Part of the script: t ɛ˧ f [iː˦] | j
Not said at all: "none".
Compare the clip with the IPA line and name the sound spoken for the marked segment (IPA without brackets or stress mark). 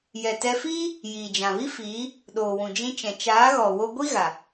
iː˦